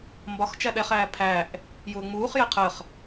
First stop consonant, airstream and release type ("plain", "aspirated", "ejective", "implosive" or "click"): plain